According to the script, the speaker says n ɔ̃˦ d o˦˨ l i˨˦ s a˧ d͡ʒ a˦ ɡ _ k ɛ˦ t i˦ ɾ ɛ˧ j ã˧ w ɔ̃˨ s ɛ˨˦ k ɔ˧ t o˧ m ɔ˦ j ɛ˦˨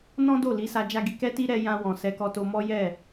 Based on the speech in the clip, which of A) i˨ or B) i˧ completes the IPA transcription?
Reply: B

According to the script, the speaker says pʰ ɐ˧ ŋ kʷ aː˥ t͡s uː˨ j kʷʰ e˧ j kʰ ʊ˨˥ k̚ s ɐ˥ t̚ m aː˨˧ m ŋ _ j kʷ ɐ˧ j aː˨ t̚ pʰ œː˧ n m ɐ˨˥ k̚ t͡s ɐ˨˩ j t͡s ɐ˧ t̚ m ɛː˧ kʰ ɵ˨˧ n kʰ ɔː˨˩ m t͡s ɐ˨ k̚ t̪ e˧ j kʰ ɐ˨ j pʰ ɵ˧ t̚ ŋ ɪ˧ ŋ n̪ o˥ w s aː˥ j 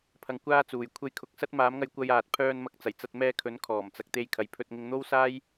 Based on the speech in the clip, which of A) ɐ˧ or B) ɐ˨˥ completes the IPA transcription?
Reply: A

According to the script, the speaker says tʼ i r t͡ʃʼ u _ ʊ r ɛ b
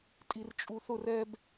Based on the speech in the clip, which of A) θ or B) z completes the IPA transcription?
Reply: A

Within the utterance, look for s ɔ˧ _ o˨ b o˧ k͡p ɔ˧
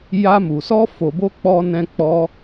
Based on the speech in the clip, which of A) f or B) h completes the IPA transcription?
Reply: A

